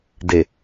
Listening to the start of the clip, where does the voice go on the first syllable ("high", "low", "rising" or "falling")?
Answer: low